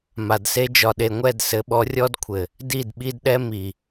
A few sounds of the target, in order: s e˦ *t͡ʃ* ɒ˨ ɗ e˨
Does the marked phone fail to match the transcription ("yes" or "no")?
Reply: yes